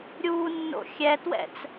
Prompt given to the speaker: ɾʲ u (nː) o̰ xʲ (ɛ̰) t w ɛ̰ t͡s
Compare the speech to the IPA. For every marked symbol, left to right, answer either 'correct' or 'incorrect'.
correct, incorrect: ɛ

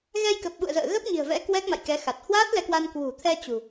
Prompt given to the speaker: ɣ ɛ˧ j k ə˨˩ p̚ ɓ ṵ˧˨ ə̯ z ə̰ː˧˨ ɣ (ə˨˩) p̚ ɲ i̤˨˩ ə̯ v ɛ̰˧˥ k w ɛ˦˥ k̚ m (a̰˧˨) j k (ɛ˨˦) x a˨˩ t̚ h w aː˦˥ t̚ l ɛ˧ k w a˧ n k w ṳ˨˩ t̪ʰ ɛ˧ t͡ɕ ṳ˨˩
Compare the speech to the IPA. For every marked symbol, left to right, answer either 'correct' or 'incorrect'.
incorrect: ə˦˥, correct, correct

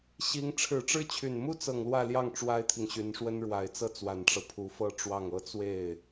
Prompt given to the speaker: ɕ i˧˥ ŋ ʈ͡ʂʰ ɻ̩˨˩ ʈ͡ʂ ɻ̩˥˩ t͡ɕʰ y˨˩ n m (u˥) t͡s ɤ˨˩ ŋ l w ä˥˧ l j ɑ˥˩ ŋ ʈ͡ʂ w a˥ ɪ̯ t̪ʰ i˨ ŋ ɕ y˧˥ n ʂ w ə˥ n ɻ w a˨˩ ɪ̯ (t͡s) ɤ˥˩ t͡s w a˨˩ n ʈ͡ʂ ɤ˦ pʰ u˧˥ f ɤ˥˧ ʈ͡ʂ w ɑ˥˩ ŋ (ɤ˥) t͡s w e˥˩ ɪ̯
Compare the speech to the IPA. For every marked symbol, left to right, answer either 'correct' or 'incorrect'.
correct, correct, correct

